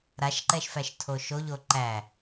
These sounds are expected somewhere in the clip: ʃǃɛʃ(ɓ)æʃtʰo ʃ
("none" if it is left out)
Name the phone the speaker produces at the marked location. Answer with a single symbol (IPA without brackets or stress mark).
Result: f